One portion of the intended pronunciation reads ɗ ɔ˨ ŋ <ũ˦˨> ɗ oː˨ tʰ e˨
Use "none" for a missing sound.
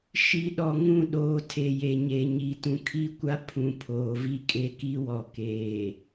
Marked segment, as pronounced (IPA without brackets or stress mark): ũ˦˨